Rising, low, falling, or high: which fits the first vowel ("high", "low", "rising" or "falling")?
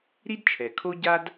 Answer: high